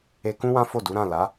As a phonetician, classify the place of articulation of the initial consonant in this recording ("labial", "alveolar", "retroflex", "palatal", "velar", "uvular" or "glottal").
velar